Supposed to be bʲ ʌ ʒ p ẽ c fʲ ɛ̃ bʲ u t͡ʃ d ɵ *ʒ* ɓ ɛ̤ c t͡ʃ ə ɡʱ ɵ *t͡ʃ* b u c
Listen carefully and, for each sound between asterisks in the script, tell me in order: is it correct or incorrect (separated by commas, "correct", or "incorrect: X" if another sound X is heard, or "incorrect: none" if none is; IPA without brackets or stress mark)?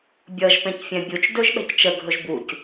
correct, incorrect: ʒ